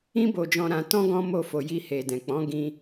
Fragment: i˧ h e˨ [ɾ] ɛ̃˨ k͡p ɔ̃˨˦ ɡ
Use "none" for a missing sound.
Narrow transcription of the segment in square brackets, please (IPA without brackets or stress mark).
d